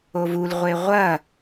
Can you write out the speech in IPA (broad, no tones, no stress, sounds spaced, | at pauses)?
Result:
o v u l ʁʷ e ʁʷ ɐ